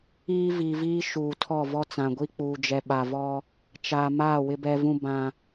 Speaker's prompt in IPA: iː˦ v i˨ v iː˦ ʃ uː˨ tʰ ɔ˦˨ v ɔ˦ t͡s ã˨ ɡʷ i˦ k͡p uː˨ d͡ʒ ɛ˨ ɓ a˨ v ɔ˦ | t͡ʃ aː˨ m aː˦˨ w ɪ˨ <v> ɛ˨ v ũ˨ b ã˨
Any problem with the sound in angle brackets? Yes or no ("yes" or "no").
yes